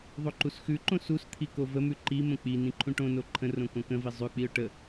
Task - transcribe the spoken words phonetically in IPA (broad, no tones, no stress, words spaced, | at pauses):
ðˤoǃusxʉǃõ sust̪ʰi kovəmʉ ǃimə̃ k͡pi nĩǃʰũʈõno ǃʰə̃rõ kõkə̃vi zˤʉk͡piʊ̯ ʈə